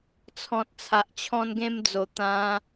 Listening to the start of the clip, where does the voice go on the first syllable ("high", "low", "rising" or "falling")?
low